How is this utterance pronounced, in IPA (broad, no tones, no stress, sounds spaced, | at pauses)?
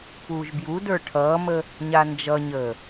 p uː ʒ b j u d ə˞ ʈʰ ʌː m ə | ɲ a n d͡ʒ ʌ ɲ əː